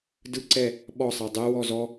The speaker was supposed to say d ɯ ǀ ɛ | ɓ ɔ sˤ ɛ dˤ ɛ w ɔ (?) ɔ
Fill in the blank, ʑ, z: z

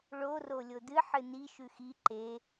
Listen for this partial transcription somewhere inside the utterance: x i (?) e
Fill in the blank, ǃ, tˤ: ǃ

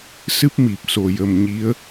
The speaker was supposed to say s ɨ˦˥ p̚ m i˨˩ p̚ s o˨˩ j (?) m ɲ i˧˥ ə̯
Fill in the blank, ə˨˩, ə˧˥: ə˨˩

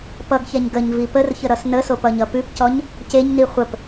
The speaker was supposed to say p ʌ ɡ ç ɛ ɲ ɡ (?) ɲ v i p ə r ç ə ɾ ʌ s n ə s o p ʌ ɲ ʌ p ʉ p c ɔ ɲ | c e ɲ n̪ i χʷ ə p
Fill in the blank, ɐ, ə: ə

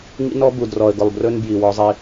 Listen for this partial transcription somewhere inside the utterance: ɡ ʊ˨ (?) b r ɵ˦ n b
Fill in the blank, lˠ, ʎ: lˠ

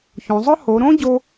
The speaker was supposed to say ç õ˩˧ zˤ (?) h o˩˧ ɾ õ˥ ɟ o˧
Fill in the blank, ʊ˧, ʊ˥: ʊ˥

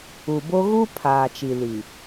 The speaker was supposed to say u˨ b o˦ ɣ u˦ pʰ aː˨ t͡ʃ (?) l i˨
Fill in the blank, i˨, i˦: i˨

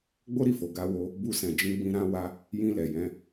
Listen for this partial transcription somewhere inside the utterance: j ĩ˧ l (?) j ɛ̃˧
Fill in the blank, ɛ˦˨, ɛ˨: ɛ˨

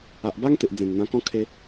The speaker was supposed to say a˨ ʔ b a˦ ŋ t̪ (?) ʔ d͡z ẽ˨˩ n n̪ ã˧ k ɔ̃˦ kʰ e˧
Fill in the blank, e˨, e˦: e˨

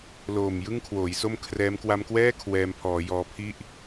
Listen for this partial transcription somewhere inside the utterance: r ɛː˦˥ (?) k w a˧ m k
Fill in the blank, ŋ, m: m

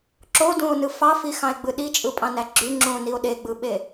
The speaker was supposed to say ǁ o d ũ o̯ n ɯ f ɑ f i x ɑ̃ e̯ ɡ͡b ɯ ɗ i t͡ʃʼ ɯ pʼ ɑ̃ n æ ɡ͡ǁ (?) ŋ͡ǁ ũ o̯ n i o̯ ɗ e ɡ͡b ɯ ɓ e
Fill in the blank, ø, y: y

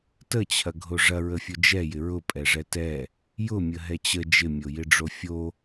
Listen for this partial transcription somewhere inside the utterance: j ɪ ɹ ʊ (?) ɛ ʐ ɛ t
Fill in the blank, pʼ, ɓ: pʼ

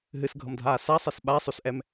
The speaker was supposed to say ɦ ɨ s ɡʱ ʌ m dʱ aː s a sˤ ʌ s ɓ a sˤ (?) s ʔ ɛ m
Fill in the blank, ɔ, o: o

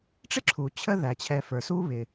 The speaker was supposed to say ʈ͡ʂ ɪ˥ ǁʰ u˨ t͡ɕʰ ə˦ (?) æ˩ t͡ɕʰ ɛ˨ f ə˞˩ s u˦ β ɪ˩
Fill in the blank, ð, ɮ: ð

